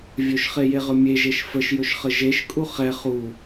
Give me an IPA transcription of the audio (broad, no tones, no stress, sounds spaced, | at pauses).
vʲ ɵ ʃ χ e j e ʁ ɵ mʲ e ʒ e ʃ f ə ʃ j ɵ ʃ χ ə ʒ e ʃ kʼ u χ ɛ χ u